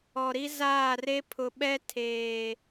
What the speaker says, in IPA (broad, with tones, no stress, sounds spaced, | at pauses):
ɔ˨ ɾ i˦ z aː˦˨ r e˦ pʰ ʊ˨ ɓ ɛ˦ tʰ eː˨